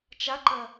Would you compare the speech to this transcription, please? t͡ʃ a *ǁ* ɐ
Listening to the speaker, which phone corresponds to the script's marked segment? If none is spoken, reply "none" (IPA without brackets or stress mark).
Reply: ǃ